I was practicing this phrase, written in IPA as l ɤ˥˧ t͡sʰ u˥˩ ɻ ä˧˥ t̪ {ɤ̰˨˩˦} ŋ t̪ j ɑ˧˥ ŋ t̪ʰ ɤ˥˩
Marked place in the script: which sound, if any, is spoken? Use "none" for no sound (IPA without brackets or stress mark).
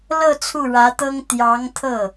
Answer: ɤ˥